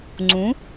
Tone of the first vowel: rising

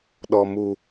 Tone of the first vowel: low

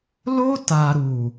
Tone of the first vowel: high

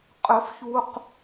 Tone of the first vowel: high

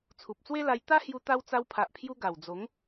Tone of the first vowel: low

